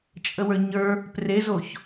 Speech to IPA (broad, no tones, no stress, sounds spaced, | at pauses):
t͡ʃʼ ə w ə˞ ɲ ə˞ | p r e z o ç